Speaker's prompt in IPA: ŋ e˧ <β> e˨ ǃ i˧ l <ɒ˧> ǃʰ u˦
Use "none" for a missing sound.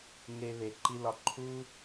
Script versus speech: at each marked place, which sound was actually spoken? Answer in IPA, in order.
β, ɒ˧

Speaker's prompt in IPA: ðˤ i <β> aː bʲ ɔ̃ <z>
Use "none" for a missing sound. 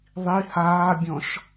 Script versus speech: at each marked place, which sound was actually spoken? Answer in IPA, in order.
h, ʃ

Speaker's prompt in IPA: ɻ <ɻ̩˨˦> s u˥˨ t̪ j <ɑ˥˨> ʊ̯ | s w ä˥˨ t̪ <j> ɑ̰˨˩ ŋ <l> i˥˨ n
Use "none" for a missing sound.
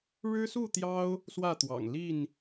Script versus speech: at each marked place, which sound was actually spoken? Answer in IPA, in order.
ɻ̩˦, ɑ˦, w, l

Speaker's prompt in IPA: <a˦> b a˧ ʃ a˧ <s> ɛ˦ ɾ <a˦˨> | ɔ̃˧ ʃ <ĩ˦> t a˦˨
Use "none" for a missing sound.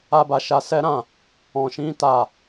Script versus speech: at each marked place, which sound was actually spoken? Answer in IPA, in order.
a˦, s, ã˦˨, ĩ˦

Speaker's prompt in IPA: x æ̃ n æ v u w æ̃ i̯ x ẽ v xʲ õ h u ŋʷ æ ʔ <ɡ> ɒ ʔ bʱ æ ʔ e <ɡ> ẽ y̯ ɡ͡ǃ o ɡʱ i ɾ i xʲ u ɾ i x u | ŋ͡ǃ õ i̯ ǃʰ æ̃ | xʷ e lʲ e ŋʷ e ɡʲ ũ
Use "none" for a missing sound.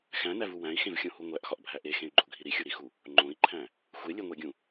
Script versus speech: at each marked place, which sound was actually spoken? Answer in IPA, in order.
x, x

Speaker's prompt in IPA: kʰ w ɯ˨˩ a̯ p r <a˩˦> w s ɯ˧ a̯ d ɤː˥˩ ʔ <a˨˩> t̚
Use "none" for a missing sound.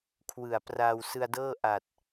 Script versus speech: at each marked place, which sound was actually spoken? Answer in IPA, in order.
a˧, a˨˩

